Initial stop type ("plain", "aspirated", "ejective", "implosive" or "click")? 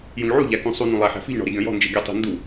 plain